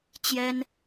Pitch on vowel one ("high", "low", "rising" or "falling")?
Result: high